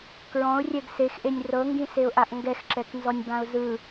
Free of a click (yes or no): no